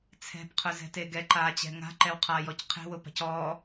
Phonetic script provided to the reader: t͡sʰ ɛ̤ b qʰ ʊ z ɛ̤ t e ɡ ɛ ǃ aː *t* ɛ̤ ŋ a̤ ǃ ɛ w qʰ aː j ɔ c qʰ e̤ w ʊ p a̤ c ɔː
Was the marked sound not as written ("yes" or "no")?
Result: yes